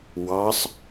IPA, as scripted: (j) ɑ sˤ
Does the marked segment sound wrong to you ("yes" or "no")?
yes